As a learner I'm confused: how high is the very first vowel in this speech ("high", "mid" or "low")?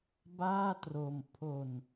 low